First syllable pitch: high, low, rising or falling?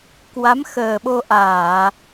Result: rising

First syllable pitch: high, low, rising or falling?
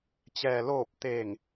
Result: low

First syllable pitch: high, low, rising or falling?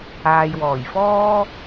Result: low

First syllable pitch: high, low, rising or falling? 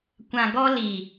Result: low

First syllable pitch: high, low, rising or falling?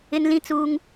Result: high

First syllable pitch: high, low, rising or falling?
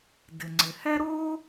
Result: low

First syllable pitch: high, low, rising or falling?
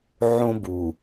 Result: high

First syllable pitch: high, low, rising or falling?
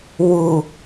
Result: low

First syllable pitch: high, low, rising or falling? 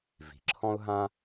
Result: low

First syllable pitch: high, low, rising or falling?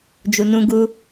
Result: low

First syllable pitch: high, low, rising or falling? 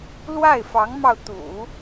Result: falling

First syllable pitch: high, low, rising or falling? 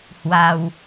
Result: low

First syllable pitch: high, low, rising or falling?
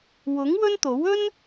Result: rising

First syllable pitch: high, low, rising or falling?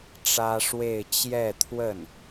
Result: high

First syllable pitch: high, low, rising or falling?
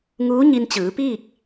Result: rising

